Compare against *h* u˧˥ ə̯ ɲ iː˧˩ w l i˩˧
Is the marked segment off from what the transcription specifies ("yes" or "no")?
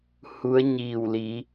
no